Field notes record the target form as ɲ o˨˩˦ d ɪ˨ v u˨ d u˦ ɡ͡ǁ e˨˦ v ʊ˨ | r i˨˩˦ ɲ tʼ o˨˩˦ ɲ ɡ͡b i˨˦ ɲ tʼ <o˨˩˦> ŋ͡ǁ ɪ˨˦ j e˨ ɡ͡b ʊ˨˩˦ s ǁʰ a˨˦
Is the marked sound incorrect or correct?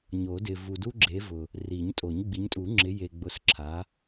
incorrect